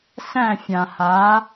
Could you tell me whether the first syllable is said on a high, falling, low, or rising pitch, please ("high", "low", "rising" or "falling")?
falling